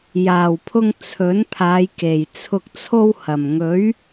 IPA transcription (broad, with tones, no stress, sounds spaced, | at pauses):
j aː˨˩ w pʰ ʊ˧ ŋ t͡sʰ ɵ˨˥ n pʰ aː˨˧ j k e˨˩ j t͡sʰ ʊ˧ k̚ t͡sʰ o˥ w h ɐ˨˩ m ŋ ɵ˨˥ ɥ